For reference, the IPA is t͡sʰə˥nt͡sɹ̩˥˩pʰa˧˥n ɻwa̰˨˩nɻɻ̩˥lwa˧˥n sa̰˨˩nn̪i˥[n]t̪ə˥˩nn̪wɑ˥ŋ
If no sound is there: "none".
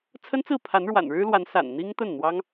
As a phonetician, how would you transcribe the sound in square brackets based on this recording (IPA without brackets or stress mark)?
ŋ